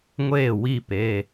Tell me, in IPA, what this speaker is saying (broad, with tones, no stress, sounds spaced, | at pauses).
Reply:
ŋʷ eː˥˩ w i˥˩ p e˩˧˩